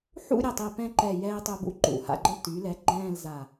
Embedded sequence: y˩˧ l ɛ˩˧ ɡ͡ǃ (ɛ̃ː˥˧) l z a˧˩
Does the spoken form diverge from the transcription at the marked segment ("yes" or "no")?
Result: no